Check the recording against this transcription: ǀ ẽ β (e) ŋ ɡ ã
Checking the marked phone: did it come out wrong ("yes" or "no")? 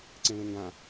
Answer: yes